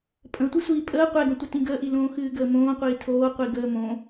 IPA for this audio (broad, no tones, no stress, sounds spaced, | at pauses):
pʼ ə̃ tʷ ɨ sʷ iː pʼ əː qʷ ɛ ɡ ə̃ tʷ ə t ĩ ɡ əː ʔ i l õː x ɨː ɡ əː m õː qʷ iː tʰ oː qʷ i ɡ əː m õ